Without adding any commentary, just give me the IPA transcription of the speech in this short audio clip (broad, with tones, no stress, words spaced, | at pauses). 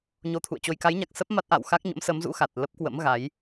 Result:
ɲo˧t̪ʰṵ˧˨ə̯t͡ɕo˧j ka˨˦jɲa˨˩k̚ sə˦˥p̚ ma˦˥t̚ʔa̰ː˧˨w xa˦˥k̚ɲə̰˧˥msə˨˦mzṵ˧˥ xa˨˩t̚ lə˦˥p̚kwə̰˧˥mɣa˨˦j